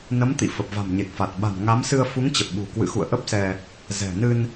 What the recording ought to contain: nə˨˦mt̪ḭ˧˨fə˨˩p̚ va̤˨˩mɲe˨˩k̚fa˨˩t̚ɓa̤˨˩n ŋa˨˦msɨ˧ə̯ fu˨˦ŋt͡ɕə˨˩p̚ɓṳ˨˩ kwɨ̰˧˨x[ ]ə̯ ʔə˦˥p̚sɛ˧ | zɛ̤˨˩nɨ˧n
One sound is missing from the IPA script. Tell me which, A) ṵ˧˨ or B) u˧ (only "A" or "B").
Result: A